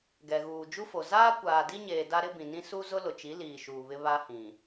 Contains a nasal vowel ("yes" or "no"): yes